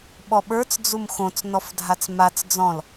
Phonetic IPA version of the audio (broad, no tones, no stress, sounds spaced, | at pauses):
ɓ ɔ ɓ ə˞ t͡s d͡z u m x õ t͡s n ɔ f dʱ a t͡s m a t͡s d͡z ɔ̃ l